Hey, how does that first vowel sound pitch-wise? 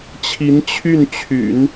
rising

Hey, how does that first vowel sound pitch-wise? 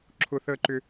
high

